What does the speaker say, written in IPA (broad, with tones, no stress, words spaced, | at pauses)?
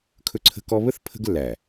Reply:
kʰɵ˦ǀʰə̤˦kɔ˦ βə˦θ pʰə̤˦ɡlːæ˨